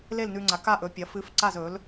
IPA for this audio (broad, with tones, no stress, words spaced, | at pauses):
le˥˨lnʉ˧ŋ͡ǀa˩˥ ka˥˨ʔɵ˩˥pʲɐ˩˥fɨ˧˥f ǀa˥˨zɵ˩˥l